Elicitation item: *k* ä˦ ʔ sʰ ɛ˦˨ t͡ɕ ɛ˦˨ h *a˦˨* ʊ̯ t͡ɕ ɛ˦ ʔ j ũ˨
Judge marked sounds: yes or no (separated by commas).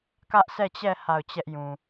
yes, yes